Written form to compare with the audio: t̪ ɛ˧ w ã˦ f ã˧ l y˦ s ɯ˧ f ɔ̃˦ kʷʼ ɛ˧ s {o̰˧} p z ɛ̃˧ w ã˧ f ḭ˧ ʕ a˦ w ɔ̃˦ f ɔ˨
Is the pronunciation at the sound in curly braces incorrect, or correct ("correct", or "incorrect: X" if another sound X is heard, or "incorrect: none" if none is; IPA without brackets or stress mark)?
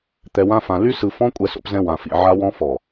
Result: correct